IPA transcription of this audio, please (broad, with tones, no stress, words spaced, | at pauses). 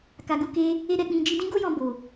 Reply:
ka˨ɡu˨ke˧ | e˦ ɾɛ˧k͡pĩ˧ d͡ʒi˧dĩ˦ɡo˦jɔ̃˧ bo˨